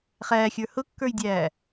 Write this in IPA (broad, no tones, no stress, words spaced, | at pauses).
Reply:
χæːxʲə˞ hʊkːə˞jdʲæː